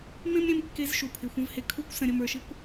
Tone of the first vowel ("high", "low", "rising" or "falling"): high